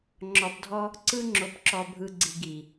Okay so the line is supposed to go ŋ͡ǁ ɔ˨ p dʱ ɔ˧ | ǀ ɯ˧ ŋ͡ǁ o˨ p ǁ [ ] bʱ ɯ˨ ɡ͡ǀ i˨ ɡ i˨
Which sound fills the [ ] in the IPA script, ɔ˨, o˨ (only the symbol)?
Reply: ɔ˨